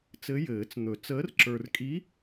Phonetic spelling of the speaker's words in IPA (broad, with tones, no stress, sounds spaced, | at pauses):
t͡s ɘ˧˥ j ɘː˨˩˦ t͡s n̪ ɵ˨˩˦ t͡s əː˧˥ r ǁ ə˞˧ r kʼ i˧˥